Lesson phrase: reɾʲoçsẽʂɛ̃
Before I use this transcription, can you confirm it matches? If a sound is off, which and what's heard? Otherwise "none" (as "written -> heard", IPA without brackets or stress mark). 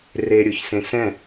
ʂ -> s